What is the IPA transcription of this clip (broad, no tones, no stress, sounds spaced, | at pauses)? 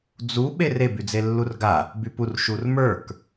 d͡z u ɓ e r e b y d͡z e lː u r ɡ a | b y p u r ʃ u r m ə˞ k